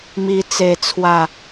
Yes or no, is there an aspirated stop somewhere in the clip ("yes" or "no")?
yes